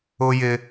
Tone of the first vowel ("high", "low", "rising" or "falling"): high